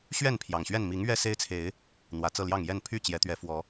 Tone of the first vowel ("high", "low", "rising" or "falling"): falling